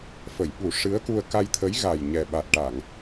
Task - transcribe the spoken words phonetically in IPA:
f ə˨˩˨ j ɓ u˨˩˦ ʂ ɨ˧˥ ə̯ k u˧ ə̯ k a˧ j t̪ʰ ə˧˥ j ɣ a˨˩ j ɲ ɛ˨˩ ɓ a˨˩ t̚ ʈ a˨˩˨ ŋ

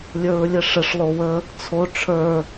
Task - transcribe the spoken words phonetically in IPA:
lʲ ə˞ ɹ lʲ ə ʂ ə ʂ lˠ o w ə | t͡sʰ o ʈ͡ʂʰ ə˞

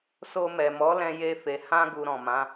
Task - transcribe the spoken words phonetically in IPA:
s o˧ m ɛ˨ m ɔ˨˦ l ɛ̃˧ j e˧ f e˨ h ã˧ ɡ u˨ ɾ ɔ̃˨ m ã˨˦

